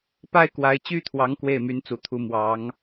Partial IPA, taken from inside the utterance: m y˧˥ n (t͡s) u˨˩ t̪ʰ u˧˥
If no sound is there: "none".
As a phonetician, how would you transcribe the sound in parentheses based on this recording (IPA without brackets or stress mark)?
t͡s